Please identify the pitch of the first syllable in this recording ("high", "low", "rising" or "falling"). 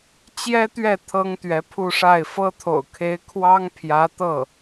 high